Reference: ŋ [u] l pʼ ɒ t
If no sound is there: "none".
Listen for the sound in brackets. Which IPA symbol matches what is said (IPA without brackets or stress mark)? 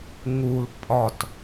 u